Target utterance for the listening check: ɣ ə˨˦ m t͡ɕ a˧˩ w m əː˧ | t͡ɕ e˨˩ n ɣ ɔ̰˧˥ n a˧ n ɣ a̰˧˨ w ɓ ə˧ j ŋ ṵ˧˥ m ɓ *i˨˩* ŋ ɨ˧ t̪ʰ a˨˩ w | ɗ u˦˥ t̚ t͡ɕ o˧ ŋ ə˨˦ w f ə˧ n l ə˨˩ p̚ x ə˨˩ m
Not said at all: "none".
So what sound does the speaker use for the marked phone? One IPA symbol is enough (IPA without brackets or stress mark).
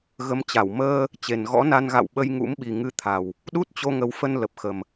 i˨˩